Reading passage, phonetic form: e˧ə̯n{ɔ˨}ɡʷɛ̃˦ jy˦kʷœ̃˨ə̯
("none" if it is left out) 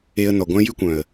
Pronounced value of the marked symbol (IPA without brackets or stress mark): ɔ˨